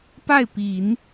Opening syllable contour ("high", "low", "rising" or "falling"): falling